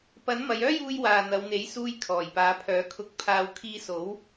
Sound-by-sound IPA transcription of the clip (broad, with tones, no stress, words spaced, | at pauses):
pɐ˨˥n mɐ˨˧jœː˥juː˧j waː˨n̪ɐ˨˧wn̪e˨˥j suː˧j kʰɔː˨˩jpaː˨˧pʰœː˨˥kʰʊ˧k̚ pʰaː˨wkʰiː˧so˨˥w